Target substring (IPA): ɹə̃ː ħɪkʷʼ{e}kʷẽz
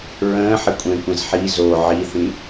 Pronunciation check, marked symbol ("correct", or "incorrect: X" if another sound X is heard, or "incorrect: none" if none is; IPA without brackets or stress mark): incorrect: ẽ